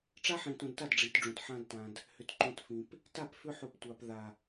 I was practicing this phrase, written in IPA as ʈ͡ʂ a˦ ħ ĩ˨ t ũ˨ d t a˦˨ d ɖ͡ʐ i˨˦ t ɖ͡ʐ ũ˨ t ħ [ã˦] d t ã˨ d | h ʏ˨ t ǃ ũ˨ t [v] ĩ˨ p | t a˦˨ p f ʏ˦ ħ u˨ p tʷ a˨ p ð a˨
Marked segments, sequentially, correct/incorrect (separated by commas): correct, incorrect